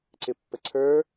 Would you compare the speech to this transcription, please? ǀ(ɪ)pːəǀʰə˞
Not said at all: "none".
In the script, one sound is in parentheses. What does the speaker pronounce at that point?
ɪ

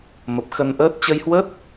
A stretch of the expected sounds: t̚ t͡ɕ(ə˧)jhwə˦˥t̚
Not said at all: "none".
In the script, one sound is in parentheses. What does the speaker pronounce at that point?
ə˧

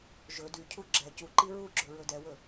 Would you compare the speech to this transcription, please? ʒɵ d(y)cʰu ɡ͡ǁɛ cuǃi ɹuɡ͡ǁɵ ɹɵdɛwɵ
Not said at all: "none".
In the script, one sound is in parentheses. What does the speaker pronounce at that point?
y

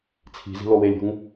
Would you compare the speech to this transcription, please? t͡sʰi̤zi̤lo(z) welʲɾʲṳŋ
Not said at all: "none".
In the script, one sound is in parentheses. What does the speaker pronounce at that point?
none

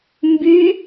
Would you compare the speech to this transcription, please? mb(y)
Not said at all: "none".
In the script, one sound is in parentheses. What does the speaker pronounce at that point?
y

